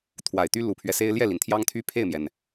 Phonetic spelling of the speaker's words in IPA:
t̪ʰwa˨˩ɪ̯t̪y˥ lu˨˩pʰɥɛ˦se˥ɪ̯ ljɛ˥˩li˩nt̪ʰjɑ˥ŋt̪ʰy˥ pʰe˥˩ɪ̯mjɛ˩n

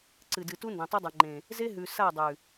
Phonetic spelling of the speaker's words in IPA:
ǀɨ˨dɨ˨tu˦ ndẽ˨tˤe˦dˤɨ˨ŋ͡ǃẽ˨ | ze˦ɦʉ˨ sa˦˨dˤʉ˨

